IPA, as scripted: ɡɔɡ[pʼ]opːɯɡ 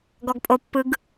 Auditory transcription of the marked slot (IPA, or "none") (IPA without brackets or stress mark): pʼ